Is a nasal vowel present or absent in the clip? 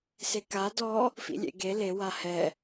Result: absent